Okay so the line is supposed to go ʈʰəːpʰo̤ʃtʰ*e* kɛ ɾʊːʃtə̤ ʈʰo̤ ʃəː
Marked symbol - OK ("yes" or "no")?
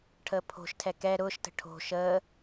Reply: no